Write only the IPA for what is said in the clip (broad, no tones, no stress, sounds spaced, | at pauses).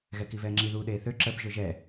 ɣ ɛ k i v ɛː ŋ͡ǁ i ð uː ɗ eː θ ø ǁ ə b ʒ ø ʒ ɛ